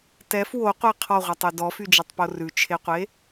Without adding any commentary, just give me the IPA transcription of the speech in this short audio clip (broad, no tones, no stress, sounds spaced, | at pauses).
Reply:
t ɛ f w o qʷ e qʰ ɔ ʁʷ ɛ tˤ y d ɔ f y d͡ʒ e tˤ p o r ʉ t͡ʃʰ e qʷ e